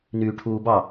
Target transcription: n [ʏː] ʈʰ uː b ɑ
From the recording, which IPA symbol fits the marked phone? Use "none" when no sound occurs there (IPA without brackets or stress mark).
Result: yː